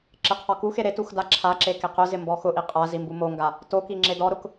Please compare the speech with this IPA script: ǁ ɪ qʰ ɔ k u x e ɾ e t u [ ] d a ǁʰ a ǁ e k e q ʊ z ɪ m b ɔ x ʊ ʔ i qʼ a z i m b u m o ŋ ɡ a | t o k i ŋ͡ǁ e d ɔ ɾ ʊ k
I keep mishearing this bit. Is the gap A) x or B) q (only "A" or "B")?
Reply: A